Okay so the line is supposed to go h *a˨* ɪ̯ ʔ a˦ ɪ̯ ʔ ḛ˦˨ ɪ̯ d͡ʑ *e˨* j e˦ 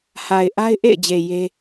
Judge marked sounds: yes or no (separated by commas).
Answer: yes, yes